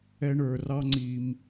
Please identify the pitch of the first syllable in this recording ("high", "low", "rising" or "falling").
high